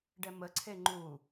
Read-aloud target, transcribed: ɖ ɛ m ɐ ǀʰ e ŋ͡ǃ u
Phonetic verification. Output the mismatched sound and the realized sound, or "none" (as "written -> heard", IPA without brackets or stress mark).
ɐ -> ə